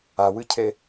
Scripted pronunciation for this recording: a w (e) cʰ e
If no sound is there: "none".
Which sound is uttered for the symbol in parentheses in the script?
ɨ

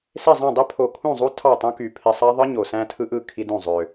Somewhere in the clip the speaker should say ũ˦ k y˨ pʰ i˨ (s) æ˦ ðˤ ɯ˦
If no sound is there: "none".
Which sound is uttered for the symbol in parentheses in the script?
sˤ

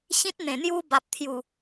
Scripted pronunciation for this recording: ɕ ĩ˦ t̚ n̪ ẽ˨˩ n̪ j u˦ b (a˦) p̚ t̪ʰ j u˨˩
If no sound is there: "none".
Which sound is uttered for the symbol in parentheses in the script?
a˨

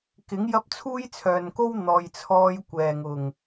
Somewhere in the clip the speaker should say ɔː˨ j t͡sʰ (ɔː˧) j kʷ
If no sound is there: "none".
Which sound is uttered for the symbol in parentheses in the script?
ɔː˧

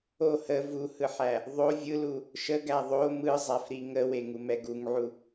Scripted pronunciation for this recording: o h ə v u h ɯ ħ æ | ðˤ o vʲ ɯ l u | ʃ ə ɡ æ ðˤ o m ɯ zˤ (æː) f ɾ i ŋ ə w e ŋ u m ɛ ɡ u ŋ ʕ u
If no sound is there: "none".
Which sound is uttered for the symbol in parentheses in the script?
æ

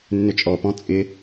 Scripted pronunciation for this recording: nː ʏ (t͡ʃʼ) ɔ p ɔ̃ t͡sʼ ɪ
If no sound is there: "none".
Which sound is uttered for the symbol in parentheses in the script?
t͡ʃʼ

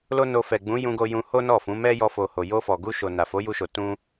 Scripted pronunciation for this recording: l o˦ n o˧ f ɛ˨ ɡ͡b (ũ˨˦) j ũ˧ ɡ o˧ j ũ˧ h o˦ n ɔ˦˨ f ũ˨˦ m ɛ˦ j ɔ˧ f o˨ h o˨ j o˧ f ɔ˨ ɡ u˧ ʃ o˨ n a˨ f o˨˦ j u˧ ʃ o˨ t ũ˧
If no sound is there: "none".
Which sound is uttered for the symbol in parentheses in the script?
ũ˨˦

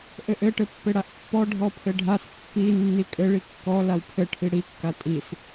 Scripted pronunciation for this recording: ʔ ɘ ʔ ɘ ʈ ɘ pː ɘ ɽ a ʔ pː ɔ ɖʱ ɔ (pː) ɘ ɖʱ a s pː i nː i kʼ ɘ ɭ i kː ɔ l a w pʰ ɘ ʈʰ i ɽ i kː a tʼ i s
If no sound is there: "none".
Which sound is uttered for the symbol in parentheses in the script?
pʰ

